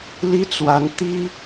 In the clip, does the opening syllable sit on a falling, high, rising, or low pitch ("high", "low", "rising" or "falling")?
high